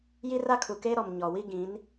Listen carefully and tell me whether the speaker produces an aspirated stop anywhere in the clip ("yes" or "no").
yes